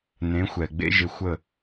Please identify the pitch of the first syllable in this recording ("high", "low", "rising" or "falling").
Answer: rising